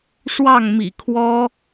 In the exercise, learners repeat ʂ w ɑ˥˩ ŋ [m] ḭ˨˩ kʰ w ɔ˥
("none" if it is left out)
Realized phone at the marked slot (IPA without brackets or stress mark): m